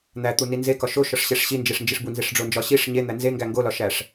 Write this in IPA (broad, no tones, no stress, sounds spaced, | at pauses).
n̪ æ t̪ u n i n z e k ɒ ʃ o ʃ ɒ ʂ ɕ e ʂ ɕ i n d͡ʒ e ʂ n d͡ʒ i ʂ b u n z e ʂ ɖ͡ʐ o n d͡ʒ ɒ ɕ i ʂ ɲ e n̪ æ n z e ŋ ɡ æ ŋ ɡ o l ɒ ʃ æ ʂ